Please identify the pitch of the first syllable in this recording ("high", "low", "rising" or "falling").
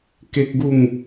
high